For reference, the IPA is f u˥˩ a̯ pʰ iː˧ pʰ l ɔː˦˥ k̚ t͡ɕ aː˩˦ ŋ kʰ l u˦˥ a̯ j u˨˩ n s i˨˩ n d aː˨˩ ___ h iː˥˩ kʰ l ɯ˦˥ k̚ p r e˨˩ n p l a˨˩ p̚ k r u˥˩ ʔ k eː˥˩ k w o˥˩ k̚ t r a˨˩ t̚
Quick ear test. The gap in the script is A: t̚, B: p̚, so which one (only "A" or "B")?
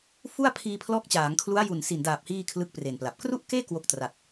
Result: B